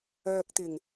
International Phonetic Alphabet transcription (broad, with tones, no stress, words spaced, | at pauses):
œː˨k̚t̪ɪ˨˩ŋ